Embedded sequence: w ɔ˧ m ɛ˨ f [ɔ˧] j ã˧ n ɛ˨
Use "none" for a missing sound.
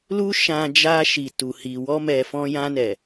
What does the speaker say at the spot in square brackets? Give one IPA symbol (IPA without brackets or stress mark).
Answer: ɔ̃˧